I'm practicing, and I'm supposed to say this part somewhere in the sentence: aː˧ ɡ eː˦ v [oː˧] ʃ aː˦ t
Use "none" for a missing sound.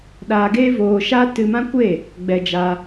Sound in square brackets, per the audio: oː˧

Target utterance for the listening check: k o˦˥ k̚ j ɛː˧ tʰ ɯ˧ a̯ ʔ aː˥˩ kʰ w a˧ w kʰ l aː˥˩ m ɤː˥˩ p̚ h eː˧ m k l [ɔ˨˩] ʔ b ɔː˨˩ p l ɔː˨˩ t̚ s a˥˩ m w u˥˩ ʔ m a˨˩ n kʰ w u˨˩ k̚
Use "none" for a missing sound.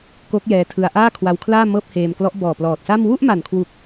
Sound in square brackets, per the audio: ɔ˦˥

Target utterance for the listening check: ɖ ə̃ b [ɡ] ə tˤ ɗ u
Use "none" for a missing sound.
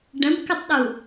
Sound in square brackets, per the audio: k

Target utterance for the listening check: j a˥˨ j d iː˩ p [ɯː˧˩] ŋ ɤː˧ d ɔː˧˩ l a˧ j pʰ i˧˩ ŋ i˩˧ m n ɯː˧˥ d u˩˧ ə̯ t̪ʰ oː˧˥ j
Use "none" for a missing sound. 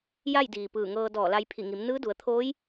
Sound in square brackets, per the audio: ɯː˧˩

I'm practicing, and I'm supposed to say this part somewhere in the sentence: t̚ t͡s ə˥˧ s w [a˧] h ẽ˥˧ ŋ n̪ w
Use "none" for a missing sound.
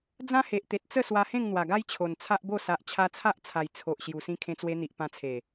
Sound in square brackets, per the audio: a˧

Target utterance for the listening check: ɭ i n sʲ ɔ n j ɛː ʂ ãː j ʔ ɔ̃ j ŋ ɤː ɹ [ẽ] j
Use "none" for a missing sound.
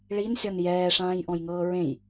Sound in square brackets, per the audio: ẽ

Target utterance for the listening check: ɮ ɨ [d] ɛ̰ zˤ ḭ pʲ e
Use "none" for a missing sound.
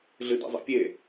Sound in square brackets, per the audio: d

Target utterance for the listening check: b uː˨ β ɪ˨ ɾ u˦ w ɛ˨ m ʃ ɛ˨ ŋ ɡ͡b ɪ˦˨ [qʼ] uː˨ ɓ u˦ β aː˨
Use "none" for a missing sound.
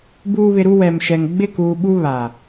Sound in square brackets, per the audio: k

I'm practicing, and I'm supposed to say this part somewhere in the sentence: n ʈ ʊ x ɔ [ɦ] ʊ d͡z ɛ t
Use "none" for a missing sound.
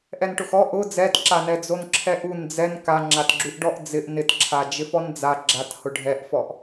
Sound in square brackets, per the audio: ʔ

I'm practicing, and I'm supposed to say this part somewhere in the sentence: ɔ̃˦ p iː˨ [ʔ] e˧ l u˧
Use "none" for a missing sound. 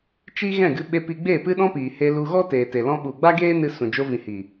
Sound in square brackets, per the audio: h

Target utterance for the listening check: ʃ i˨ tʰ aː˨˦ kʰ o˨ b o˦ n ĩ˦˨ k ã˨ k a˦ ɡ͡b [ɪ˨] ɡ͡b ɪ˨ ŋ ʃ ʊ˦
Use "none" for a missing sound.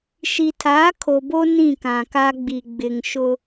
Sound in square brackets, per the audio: i˨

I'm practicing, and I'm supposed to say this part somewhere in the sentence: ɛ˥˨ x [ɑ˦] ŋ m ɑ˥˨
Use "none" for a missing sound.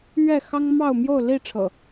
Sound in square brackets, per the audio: ɑ˦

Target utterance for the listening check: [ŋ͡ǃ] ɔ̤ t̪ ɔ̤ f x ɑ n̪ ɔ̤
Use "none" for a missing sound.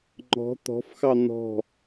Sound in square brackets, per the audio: ŋ͡ǃ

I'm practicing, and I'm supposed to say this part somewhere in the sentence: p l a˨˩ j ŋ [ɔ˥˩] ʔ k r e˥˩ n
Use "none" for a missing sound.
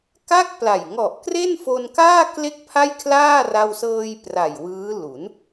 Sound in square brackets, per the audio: ɔ˨˩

